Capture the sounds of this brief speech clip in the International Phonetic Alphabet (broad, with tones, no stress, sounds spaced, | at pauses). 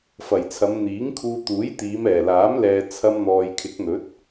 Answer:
f ɐ˨˩ j t͡sʰ ɐ˨˧ m n̪ iː˨˥ ŋ kʰ uː˧ t̪ uː˨˥ j t̪ iː˨˧ m ɛː˨˩ l aː˨˥ m l ɛː˨ t͡sʰ ɐ˧ m n̪ ɔː˨ j kʰ ɪ˨˥ k̚ n̪ ɵ˨˥ t̚